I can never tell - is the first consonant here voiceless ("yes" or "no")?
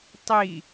yes